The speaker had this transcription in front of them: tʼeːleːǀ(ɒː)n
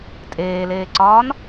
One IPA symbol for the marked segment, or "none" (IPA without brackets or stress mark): ɒː